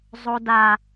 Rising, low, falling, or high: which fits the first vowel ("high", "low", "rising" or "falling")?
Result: high